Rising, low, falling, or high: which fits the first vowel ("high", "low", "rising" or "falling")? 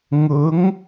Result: rising